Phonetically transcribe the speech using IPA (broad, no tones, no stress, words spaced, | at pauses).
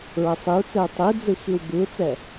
ɹɛsˤiu̯t͡sɛu̯ tˤid͡zɨ xiwbɨu̯t͡sɛ